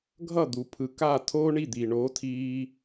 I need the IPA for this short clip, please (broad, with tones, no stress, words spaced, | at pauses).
ɡʱʌ˥˨d̪u˨ pʰɯ˨ka˥˨ tʰoː˥ɳi˥˨d̪iː˨ɳoː˧˥ tʰiː˥